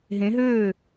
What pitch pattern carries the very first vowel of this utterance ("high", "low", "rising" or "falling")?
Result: rising